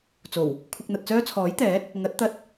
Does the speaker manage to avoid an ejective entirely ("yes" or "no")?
yes